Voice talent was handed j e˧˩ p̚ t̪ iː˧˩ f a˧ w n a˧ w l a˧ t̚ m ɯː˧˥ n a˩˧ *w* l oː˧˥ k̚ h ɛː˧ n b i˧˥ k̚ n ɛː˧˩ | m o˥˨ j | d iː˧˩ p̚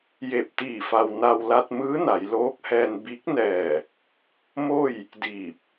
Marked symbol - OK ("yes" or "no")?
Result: no